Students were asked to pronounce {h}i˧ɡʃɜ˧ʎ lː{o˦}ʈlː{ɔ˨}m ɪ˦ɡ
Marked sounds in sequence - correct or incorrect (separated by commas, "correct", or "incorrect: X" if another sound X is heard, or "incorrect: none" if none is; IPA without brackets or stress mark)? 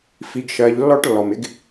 incorrect: f, incorrect: ɔ˦, correct